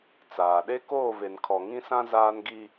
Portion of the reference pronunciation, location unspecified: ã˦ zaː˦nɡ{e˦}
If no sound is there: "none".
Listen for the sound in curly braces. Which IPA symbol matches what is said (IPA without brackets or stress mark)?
i˦